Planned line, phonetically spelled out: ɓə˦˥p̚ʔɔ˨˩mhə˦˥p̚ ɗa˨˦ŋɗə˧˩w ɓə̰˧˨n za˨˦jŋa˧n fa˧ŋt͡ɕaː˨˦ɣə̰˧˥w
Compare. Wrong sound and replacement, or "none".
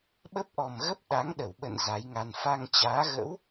h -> ɣ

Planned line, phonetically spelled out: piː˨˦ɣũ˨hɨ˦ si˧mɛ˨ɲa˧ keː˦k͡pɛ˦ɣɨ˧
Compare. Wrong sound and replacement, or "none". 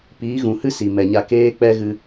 i˧ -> i˨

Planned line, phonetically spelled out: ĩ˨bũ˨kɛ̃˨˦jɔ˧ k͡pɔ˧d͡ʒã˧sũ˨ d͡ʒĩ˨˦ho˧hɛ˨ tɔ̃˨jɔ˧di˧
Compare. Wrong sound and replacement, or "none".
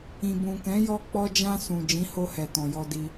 none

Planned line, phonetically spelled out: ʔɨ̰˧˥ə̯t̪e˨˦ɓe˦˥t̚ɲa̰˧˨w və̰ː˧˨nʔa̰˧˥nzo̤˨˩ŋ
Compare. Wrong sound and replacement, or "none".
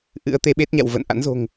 none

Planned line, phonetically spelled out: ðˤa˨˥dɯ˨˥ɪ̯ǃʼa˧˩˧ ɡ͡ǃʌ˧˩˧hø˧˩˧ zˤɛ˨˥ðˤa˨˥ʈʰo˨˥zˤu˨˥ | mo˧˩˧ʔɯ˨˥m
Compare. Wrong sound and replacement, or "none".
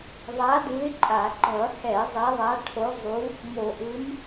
ø˧˩˧ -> ɛ˧˩˧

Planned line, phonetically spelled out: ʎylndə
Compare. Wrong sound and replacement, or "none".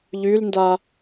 ə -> a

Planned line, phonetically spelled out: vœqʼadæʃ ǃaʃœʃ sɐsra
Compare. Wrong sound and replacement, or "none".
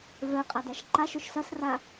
none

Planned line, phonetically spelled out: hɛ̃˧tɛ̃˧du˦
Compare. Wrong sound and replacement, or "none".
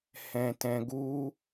d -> ɡ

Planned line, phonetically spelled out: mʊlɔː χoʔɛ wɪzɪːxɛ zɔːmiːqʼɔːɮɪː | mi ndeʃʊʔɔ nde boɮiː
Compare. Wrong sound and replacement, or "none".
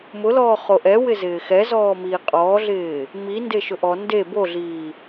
none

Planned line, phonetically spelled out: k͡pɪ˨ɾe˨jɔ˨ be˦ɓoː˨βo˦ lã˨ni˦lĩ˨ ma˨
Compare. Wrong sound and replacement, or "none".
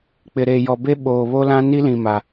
ã˨ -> ã˦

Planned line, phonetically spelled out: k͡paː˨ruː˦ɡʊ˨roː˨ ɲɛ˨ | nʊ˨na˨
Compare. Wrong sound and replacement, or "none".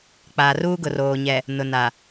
none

